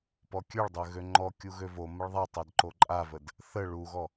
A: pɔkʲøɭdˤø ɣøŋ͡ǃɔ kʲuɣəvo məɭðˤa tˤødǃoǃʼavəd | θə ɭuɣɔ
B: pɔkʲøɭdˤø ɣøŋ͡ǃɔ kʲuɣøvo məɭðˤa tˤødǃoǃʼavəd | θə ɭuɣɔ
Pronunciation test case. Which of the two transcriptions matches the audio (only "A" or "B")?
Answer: B